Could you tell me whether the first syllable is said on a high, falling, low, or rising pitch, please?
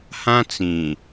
high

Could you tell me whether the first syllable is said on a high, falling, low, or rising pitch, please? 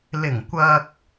low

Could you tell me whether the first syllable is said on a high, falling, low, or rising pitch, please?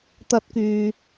high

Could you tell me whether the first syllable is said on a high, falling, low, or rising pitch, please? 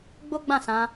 high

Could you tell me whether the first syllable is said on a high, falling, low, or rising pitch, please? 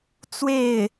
falling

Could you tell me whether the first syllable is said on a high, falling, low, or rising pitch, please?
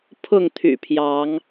falling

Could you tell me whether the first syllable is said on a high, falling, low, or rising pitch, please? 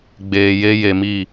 low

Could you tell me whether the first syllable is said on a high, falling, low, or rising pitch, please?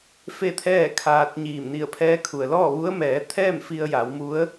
falling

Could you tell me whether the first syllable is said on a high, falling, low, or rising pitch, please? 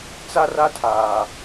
high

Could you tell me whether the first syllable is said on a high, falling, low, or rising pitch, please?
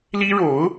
high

